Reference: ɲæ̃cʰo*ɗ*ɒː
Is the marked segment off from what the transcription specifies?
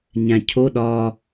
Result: no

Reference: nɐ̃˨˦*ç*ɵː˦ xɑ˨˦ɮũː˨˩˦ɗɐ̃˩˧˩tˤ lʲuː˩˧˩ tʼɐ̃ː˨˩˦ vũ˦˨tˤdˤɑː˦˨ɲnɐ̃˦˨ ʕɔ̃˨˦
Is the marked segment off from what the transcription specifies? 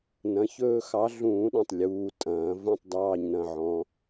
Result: no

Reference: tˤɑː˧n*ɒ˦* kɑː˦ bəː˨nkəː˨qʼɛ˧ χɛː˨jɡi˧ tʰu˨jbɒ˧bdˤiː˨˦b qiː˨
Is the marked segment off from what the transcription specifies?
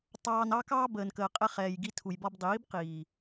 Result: yes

